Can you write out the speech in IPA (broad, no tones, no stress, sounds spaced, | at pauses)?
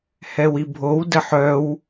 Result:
h ɛ w i bʱ o w d ə ħ œ w